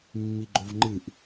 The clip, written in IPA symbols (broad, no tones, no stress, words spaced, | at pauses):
mːiɡ͡ǃovŋ͡ǃɨʔ